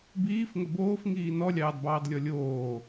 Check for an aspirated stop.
absent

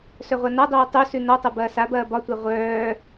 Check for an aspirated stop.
absent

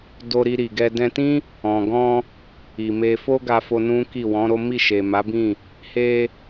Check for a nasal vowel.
present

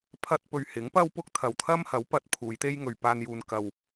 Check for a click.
absent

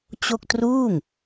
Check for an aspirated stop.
absent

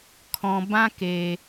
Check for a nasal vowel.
present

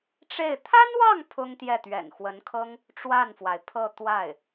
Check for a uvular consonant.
absent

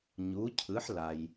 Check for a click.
absent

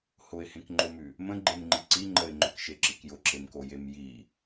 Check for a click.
present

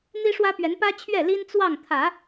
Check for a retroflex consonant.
present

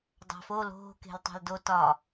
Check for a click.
absent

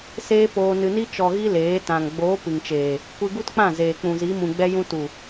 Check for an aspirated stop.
absent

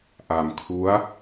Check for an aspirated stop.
present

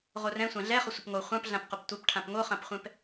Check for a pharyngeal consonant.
absent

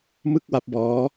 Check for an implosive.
absent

